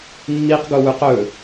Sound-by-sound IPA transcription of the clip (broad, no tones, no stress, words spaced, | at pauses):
mːiqɡowʉq ɵ